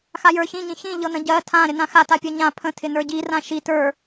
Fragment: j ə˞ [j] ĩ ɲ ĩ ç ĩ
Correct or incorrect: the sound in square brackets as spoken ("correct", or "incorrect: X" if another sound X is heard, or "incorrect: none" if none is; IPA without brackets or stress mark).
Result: incorrect: ç